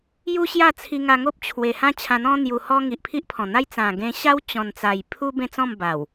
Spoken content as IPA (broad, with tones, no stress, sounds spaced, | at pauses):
j u˦ ɕ j a˥˧ t͡sʰ i˧ ŋ a˧ ŋ o˦ p̚ t͡ɕʰ w e˨˩ h ã˦ t͡ɕʰ ã˧ n̪ ɔ̃˦ n̪ j u˧ h ɔ˦ ŋ i˨ ʔ pʰ i˦ ʔ pʰ ɔ̃˨˩ n̪ a˦ j t͡s ã˨˩ ɡ ẽ˧ ɕ a˦ w t͡ɕ ɔ̃˨˩ n t͡s a˨˩ j pʰ u˦ b ẽ˥˧ t͡s ɔ̃˥˧ m b a˨˩ w